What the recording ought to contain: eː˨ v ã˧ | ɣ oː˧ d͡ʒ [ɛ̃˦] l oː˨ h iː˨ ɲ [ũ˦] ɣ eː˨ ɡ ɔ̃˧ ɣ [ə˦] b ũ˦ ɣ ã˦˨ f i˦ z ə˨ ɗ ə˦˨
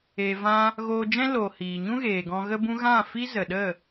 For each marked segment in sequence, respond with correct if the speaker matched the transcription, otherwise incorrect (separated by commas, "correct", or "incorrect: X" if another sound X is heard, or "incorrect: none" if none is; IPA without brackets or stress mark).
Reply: correct, correct, correct